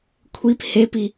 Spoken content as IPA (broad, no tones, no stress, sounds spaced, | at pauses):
kʷʰ i p h e p i